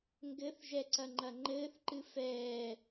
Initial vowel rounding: unrounded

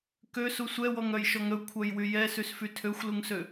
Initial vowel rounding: rounded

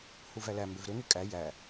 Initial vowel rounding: rounded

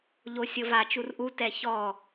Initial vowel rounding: rounded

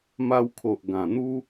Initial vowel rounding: unrounded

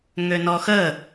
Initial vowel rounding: rounded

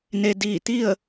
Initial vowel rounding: unrounded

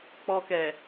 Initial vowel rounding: rounded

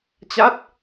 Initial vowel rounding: unrounded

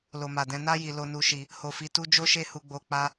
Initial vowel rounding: rounded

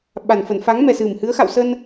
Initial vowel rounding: unrounded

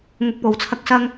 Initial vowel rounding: rounded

